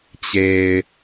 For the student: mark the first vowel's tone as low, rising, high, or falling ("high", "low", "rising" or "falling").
low